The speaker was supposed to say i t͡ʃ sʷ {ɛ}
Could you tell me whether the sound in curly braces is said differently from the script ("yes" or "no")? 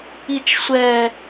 no